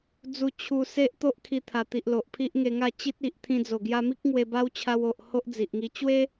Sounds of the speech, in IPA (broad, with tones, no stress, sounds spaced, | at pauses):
d͡z u˧ t͡ɕʰ u˧ s e˦ ʔ t̪ o˦ ʔ kʰ i˧ t̪ʰ a˨˩ t̪ i˨ ʔ l o˨ ʔ pʰ i˦ ʔ ŋ e˧ ŋ a˥˧ t͡ɕ i˦ t̚ i˨ ʔ t̪ʰ ĩ˧ d͡z o˨˩ ɡ j a˧ m i˦ k̚ ŋ w e˧ b a˦ w t͡ɕʰ a˧ w o˨ ʔ h o˦ ʔ d͡z i˨ ʔ ŋ i˧ t͡ɕ w e˦